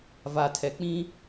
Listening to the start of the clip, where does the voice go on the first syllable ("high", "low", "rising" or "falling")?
low